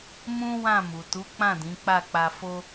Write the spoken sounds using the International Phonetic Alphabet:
mũ˦ wã˦˨mu˨ tu˨˦ k͡pã˦˨dĩ˨˦ k͡pa˦˨k͡pa˧fo˦

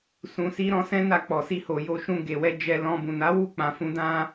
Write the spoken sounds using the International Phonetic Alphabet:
sũ˧si˦ɾɔ̃˦ sɛ̃˦na˧k͡pɔ˨si˧ ho˨jo˧ ʃũ˧ɡe˨wɛ˧ d͡ʒɛ˧lɔ̃˧ bũ˨na˨˦wu˦˨ k͡pã˧fũ˦ dã˦

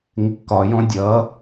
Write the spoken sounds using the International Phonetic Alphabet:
ŋɪkːɒjɔ̃ dʲʌ

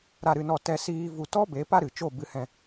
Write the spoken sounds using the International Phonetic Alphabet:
ɾa˦˨ɾɨ˧nɔ˦˨ tɛ˧siː˧ vu˨ tɔ˦ be˨˦pa˦ɾɨ˨t͡ʃo˦˨ bɨ˧hɛ̃˧

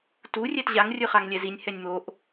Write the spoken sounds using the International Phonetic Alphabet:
tu rʲɛtʑaŋ rʲɯχaŋlʲɛzinʲ hɛnʲmoʔ

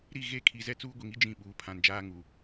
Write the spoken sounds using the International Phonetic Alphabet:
ɾi˦˨ɣe˦˨kʰi˨zɛ˦ t͡suː˦ɡʷi˨ŋi˦ d͡ʒĩ˦˨ ɓuː˨pʰã˨nd͡ʒaː˦ŋu˨

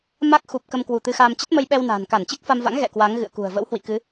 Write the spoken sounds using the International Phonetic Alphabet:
ma˦˥k̚ xu˨˩p̚ kə˧mkwu˧˩t̪ɨ˧xaː˧m t͡ɕə˦˥t̚mə˧jɓɛ˧wna̤ː˨˩n ka˧˩nt͡ɕɨ˦˥k̚fa˧mva̰˧˥ŋ ɣɛ̰˧˨kwa˨˦ŋ ɣɨ̰˧˨ə̯kṳ˨˩ə̯ və̰˧˥whwḭ˧˨kɨ˨˦

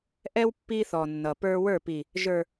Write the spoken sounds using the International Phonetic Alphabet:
ʔɛ˦w pːi˦θɔ˨nːʌ˨pə˞˦ wə˞˦˨pi˨ | ʒə˞˨

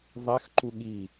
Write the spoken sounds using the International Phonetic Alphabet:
ðˤɛxǃu ɠi

